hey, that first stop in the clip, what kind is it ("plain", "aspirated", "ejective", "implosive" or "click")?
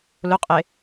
ejective